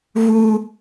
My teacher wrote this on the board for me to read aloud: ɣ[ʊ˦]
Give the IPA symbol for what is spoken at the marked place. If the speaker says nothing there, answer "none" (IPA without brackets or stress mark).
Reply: u˦